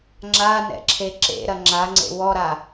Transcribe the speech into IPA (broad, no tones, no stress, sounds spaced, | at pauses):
ŋ͡ǁ a n ɛ̰ ǁʰ e ǁ ḛ ɾ ɐ ŋ͡ǁ a ŋ͡ǀ ḛ w ɔ ɾ a